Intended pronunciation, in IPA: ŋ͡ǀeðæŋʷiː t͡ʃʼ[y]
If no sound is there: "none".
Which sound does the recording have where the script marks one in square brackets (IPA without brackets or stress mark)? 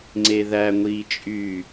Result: y